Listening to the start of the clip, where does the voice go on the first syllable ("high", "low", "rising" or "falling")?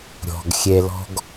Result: low